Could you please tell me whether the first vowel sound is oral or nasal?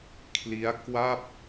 oral